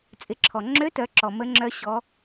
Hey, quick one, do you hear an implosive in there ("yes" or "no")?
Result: no